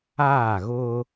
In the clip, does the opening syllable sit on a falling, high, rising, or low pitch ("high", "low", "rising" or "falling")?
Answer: falling